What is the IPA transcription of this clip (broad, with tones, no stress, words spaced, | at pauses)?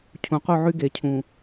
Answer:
cʰũ˨qu˦˨ʕy˦ ɡe˨cʰũ˨